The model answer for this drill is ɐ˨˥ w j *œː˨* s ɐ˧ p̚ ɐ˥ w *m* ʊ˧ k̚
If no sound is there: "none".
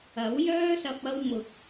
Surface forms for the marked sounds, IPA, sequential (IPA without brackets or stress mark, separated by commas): œː˥, m